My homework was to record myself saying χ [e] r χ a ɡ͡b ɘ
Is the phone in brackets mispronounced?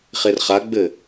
no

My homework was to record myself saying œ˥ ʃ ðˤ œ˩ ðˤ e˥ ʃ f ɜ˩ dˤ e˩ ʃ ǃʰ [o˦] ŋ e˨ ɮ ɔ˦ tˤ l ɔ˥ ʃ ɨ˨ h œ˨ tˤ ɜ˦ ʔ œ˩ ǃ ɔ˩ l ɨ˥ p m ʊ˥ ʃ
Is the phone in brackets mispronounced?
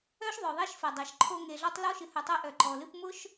no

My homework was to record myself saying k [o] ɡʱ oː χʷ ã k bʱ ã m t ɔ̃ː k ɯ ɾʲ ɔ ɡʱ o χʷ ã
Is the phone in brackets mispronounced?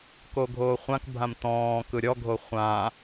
no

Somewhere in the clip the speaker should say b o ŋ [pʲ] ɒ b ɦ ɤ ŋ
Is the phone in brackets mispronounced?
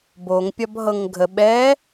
no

